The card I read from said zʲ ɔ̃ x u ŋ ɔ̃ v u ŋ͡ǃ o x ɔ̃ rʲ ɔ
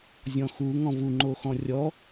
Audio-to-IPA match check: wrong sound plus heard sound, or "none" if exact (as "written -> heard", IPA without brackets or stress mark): none